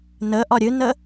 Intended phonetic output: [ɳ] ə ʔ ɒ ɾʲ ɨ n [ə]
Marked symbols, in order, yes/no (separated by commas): no, yes